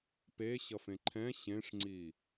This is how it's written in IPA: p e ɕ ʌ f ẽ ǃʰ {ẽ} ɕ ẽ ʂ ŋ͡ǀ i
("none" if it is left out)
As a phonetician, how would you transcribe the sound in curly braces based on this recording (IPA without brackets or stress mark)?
ɛ̃